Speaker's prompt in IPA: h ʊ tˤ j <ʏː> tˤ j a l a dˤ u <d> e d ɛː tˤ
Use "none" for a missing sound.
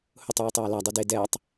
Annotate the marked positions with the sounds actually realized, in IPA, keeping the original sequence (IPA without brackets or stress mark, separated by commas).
uː, d